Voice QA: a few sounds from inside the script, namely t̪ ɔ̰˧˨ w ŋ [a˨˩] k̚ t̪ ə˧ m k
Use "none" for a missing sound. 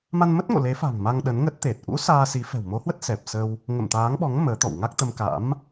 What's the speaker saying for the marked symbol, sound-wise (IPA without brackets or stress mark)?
a˦˥